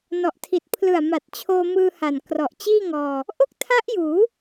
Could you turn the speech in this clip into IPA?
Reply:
nɔ˨˩ʔtʰi˨˩t̚ pʰlɯ˨˩a̯ ma˨˩t̚t͡ɕʰoː˧mɯː˧ha˨˩n krɔ˨˩ʔt͡ɕiː˥˩ŋɔː˧ | ʔo˥˩k̚tʰa˦˥ʔjuː˩˦

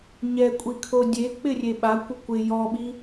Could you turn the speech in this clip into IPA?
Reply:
ɲɛkʷʼikʰo dʲek͡pɪrʲe ɓakʷɪ kʷɪ jɔɓi

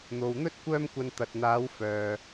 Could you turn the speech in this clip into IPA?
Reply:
n̪o˨wn̪ɵ˥t̚ kʷœː˥mkʷɐ˧n t̪ɐ˨t̚n̪aː˨˧w fœː˨

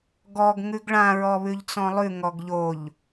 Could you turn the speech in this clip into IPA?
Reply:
ɡɔɡ ŋʉɡɭã ɹɔβʉʎt͡sɔ̃lˠʉ ŋɔɡʎoʎ

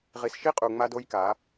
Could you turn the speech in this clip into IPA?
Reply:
ʁi˨sʃi˦qʼu˨ ŋ͡ma˦do˦jka˨˦

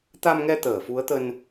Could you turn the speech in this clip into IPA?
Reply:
t̪a˧mŋɛ˧ t̪əː˧˩fu˨˦ə̯t̪ə˧n

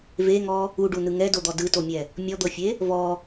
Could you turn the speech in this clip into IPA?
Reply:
veŋɔ | uɖunɯ ŋɛdod̪ɔ dɯtomʲɛ | mʲɔd̪ɤfʲe | vɔ

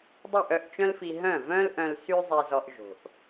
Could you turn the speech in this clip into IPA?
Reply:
dˤy˥˩ʔœ˥˩ʔt͡ʃœ̃˥lfi˧ ɦœ̃˥˩vœ̃˥lʔœ̃˧l sy˥zˤe˧zɔ˧ʔ ʒo̤˩ʔ

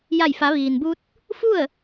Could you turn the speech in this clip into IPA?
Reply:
ja˧˩jfa˩˧ ʋiː˩nbu˧t̚ | fu˥˨ə̯

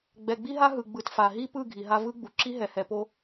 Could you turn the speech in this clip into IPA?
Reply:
ɡ͡bɛ˨ɡ͡bi˦ɦa˦ ɦɯ˨ɡ͡bɯ˨tfa˨ ɦi˦pɯ˦˨ ɡʱi˨ɦa˦ vɯ˦ɡ͡bu˨ ǁi˦ɦɛ˨hɛ˨po˦

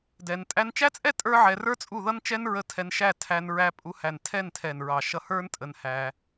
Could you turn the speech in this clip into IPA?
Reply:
dɛ˧n tʼæ˧nt͡ʃæ˦t͡sʼɛ˦ tʼə˞˦ʕɛ˧rə˞˦t͡sʼu˦˨ ðʌ˦nt͡ʃɛ˦n ɹə˧tʰɛ˧n ʃæ˦˨tʰæ˧nɹæ˧ pʼu˧ hæ˨n tʰɛ˦˨ntʰɛ˨nɹɑ˨ ʃʌ˧hə˞˦ntʼə˧n hæ˧

